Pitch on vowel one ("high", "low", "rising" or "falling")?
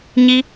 high